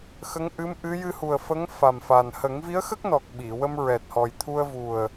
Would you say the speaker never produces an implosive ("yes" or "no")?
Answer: no